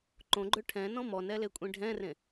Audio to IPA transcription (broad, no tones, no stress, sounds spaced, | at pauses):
ǃ õ ɡ͡ǃ ø ʈʰ ɛ̃ n ɔ̃ m ɔ n ɛ l e kʷʼ ĩ ɖʱ ɛ̃ r ẽ